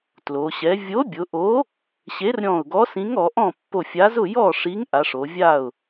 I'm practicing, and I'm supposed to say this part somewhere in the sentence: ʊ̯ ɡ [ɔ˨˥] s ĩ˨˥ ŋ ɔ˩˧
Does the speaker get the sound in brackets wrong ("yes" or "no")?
no